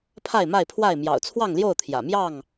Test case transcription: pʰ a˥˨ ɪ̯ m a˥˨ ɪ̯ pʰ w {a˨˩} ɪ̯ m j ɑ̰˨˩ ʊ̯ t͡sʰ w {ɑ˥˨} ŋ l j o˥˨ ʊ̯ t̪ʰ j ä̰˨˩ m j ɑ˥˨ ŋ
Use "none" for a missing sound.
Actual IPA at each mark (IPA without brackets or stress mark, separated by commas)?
a˥˨, ɑ˥˨